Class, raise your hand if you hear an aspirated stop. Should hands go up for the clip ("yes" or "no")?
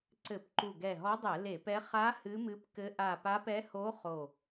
no